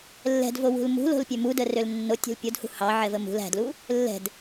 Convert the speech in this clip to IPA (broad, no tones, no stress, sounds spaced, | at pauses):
lː ɛ̤ d v o w ṳ l m ṳ l o̤ l pʲ ø m u d ə r ø l nː o tʲ o̤ l pʲ o d h ṳ h ɑ ʕ ɛ v ə m ṳ l æ̤ d l u | lː ɛ̤ d